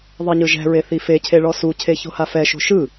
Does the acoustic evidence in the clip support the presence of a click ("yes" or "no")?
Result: no